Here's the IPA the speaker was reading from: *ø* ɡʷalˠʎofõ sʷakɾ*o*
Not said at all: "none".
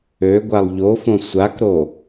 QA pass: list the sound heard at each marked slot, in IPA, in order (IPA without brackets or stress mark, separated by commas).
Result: ø, o